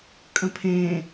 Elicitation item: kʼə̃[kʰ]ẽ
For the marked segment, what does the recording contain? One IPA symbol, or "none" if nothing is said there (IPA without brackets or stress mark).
pʰ